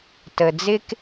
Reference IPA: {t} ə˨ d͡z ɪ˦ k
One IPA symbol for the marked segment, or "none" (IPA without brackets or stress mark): t